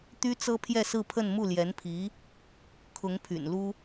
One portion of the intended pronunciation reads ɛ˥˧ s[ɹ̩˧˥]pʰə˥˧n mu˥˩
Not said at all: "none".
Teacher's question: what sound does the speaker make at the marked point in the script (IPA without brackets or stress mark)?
ɹ̩˥˧